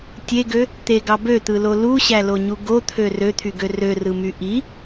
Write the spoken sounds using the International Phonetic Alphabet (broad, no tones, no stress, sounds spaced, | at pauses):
tʲ e ɡ ø | t̪ e ɡ ɑ b ø t̪ ɯ l o l u ɕ æ l o ɲ u ɡ o t̪ʰ ø r ø t̪ʰ y ɡ ø r ø r ɯ m y ʔ i